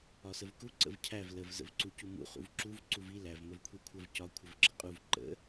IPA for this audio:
ɒsəvku ǀə̰vcʰæv ləv zə̰vǀucumṵ χṵvǁuv ǀuvi læv məvkʷʰikʷʰəv cɒ kʷʰəvǁəqʼuv ǃə̰

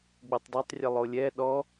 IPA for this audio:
ɡ͡butˤdˤetˤrʲə lˠolʲɛ ɗɔ

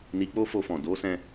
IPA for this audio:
ni˧ k͡po˦fo˧fɔ̃˨ do˨˦sɛ̃˧

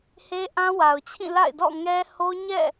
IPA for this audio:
he˦ʔã˦wa˨ʊ̯t͡ɕʰĩ˦˨ la̰˦˨ɪ̯dɔ̰˦˨ ŋɛ˦ ho˦ ɲɛ̰˦˨

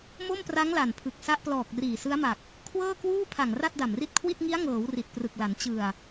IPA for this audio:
mo˥˩mpra˦˥ŋ la˨˩npʰɯ˨˩k̚ sa˦˥ʔplɔː˨˩k̚ riː˨˩sɯ˦˥a̯ma˨˩k̚ | kʰwɤː˥˩kwuː˥˩pʰa˨˩ŋ ra˥˩t̚da˨˩mri˦˥t̚kʰwi˥˩t̚ ŋi˦˥a̯ŋɤː˩˦w ri˨˩t̚prɯ˨˩k̚la˩˦n t͡ɕɯ˨˩a̯

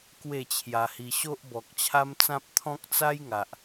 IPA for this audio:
kwe˥˧t͡ɕʰja˧hi˧ ɕo˦ʔ bɔ˨k̚t͡ɕʰa˦mt͡sã˦p̚ t̪ʰɔ̃˦k̚t͡sa˦jŋa˨ʔ

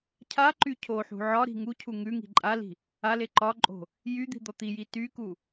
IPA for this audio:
cʰa ǃycʰoħṳ ʕɒɾi̤ ŋucʰu ŋʉŋi̤ ǃʼali̤ | ale ǃɒǃʼo̤ | jyd̪i̤ d̪ɔt̪iji tyku

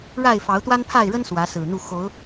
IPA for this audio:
ɻa˥˨ɪ̯ fɑ˨˦ʊ̯t̪wa˦npʰa˥˨ɪ̯ɻə˦n swä˨˦sɹ̩˨˩n̪u˥˨ xo˨˦ʊ̯

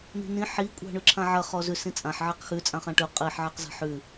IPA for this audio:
ni̤nĩ ħi kʷʼa̤ɳʉǁʰãʕɐ χɔzʉ sĩt͡sʼãħ ʕeqxʉ t͡sʼãχãʈʉ qʼiħ ʕeqza̤ħʉ

